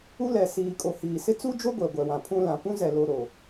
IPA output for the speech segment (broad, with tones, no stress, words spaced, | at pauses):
u˦lɛ˨siː˨kʼo˨ hiː˨sɪ˦ t͡su˦d͡ʒo˦ ɡʷɛ˨ɡʷɛ˨wã˨pʰũ˦ lã˨pũ˦zɛ˨ lo˨ɾo˨